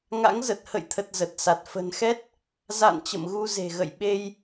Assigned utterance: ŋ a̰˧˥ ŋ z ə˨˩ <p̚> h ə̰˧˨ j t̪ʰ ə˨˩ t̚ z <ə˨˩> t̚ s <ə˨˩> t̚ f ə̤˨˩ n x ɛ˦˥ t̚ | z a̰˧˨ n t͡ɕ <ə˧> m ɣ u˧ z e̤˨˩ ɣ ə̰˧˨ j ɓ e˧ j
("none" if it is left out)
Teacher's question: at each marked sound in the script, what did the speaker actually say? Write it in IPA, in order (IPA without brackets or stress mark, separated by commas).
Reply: t̚, ə˨˩, a˨˩, ə̰˧˨